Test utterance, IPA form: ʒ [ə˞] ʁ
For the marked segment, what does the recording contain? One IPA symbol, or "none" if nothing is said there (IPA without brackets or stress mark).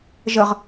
ə